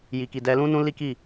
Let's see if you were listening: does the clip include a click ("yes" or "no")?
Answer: no